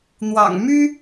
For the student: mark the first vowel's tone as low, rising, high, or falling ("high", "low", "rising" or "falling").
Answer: low